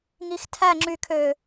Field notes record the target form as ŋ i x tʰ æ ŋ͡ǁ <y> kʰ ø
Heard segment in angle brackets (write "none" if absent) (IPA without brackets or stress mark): y